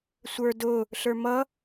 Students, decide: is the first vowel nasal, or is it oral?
oral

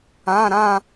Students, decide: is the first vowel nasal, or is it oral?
nasal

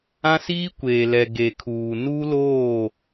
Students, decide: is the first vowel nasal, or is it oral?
nasal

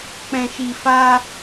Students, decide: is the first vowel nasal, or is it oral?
nasal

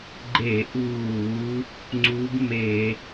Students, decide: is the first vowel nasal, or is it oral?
oral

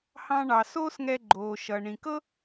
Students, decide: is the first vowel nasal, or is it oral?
nasal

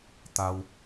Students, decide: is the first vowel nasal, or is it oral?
oral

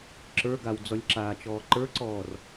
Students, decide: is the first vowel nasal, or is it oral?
oral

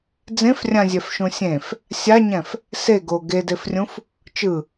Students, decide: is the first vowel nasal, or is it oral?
nasal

